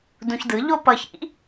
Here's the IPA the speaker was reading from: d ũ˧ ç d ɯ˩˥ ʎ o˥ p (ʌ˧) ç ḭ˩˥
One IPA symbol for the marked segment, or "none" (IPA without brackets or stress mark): ʌ˧